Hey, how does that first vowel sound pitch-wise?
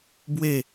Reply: falling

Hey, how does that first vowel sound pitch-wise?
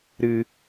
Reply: high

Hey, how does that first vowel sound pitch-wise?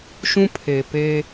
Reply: high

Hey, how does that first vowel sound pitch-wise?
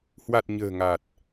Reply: low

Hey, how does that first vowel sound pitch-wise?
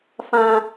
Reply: high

